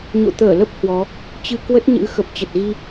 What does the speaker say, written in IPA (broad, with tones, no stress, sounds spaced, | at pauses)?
ɲ o̰˧˨ t̪ əː˧˩ l ə˦˥ p̚ h w ɔ˨˦ | t͡ɕ ɨ˧ k w ə˦˥ t̚ ɲ ɨ̰˧˥ x ə˨˩ p̚ t͡ɕ ə˨˩ t̚ ɣ i˧